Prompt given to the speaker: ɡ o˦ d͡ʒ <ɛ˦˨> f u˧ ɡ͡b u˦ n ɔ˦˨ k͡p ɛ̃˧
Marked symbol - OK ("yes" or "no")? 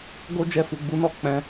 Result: yes